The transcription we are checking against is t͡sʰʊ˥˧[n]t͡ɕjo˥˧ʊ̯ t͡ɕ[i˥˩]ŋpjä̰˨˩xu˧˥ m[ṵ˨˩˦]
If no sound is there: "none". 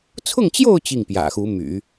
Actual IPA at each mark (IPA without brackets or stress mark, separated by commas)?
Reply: ŋ, i˥˩, y̰˨˩˦